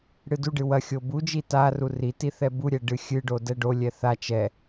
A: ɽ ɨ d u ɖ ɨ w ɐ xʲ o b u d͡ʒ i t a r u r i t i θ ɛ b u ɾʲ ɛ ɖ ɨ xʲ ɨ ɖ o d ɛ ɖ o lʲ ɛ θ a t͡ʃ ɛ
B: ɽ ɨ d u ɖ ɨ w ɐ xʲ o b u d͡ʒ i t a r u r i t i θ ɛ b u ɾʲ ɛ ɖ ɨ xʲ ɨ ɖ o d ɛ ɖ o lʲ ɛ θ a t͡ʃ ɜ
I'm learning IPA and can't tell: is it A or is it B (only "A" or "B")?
A